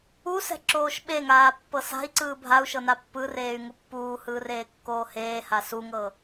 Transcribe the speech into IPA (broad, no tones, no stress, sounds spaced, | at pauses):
u s ɛ̤ ǁ oː ʃ ɓ e ŋ aː pː ɤ s a̤ i̯ ǀ ɯː bʱ a u̯ ʃ ɤ n a pː ɯ r eː y̯ ŋ u pː uː h ɯː r eː kː oː h eː h a s u ŋ ɤ